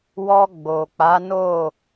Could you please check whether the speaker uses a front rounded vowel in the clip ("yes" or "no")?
no